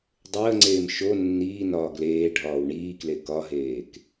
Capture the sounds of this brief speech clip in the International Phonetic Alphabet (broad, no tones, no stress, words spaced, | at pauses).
dˤəːŋ͡ǀeːm ʃo nːiːnɒː ɡleː ɖʱɒːwɳiːkle kɒɦeːk